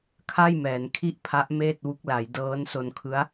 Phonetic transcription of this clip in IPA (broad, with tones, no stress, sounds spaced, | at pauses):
kʰ a˥˩ j m ɛː˩˦ n kʰ i˥˩ ʔ pʰ a˦˥ ʔ m eː˥˩ t̚ w u˦˥ k̚ l a˩˦ j d ɤː˦˥ n s o˧ n kʰ ɯ˦˥ a̯